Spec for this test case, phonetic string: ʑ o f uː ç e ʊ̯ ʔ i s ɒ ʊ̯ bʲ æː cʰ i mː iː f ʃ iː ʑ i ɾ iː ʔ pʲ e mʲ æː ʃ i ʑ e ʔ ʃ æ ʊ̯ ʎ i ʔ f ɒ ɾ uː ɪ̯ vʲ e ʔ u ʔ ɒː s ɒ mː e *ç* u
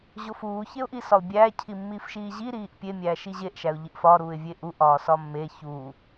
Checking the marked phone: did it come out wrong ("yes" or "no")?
no